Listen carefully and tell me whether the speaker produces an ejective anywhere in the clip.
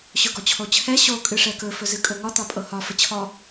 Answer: yes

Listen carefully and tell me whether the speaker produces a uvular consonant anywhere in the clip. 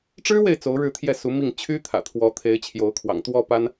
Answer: no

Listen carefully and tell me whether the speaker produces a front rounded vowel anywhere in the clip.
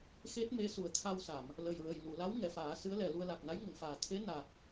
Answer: no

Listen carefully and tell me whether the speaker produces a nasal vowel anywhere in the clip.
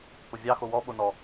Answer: no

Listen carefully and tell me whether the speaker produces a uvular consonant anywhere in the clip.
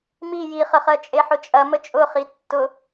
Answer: yes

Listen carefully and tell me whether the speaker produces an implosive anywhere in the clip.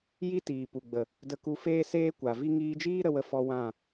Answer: no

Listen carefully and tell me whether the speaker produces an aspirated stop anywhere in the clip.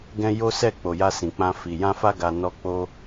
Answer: no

